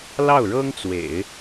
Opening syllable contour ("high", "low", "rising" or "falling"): falling